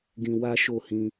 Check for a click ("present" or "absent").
absent